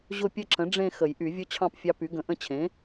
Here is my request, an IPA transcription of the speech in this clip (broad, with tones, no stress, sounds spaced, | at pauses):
ʑ ʊ˥˧ pʲ ə˥˧ ǁ ə̃˩˥ ɖ͡ʐ ẽ˥˧ x ə˨˩˦ j ʔ y˨˩˦ vʲ ʊ˦˥ t͡ɕʰ ɑ̃˥˧ p fʲ ɑ˦˥ p y˩˥ ɡ ə̃˨˩˦ ʔ ə̃˥˧ t͡ɕʰ ẽ˩˥